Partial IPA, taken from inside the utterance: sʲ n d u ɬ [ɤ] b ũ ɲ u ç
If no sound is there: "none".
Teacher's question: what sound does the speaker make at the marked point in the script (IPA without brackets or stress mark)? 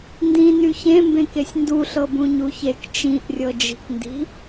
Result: ɤ